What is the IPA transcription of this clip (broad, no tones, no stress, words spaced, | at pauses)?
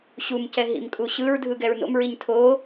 ɕumcɛ ɦḭmkʼuɕɯɹdʱɯ ɡɛɹno̰mɹiɲ tʰo